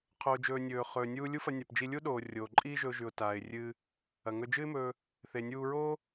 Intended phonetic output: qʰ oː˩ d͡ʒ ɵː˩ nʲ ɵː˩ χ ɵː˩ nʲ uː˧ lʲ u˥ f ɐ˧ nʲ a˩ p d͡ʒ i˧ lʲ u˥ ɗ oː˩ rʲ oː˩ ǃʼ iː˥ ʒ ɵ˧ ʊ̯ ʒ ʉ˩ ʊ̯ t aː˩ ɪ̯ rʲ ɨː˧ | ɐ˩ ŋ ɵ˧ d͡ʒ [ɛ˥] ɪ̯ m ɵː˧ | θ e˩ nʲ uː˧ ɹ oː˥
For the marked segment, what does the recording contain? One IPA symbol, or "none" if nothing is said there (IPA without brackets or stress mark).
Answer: ɨ˥